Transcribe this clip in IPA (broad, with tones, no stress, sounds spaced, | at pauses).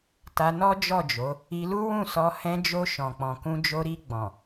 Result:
t a˧ n ɔ˦ d͡ʒ ɔ˦˨ d͡ʒ o˨˦ | i˧ l u˦ w ũ˦˨ s ɔ˧ h ɛ̃˧ d͡ʒ o˧ ʃ ɔ̃˨ k͡p ɔ̃˨ k ũ˧ d͡ʒ o˧ ɾ i˧ ɡ͡b ɔ̃˨